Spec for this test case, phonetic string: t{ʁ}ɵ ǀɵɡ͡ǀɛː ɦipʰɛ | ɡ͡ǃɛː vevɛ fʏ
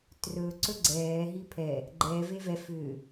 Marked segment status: incorrect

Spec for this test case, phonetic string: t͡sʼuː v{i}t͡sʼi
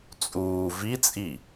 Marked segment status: correct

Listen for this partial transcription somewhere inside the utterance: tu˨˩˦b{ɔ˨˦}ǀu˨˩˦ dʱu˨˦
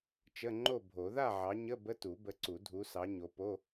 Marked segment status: incorrect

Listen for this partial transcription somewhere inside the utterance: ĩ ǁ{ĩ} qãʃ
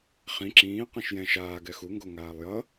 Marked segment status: incorrect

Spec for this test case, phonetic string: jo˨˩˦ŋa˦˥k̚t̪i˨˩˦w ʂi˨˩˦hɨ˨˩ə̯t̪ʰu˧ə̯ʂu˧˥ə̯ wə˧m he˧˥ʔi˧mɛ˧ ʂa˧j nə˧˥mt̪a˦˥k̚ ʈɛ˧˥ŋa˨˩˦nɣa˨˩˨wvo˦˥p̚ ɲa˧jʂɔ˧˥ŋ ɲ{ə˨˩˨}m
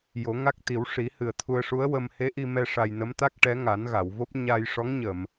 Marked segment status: correct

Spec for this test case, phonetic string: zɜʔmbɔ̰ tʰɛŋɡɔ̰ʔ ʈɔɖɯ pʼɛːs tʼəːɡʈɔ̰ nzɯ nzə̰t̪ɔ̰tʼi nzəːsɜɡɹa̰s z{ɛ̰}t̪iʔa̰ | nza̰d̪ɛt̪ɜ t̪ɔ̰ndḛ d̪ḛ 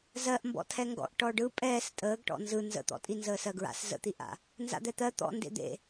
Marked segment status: incorrect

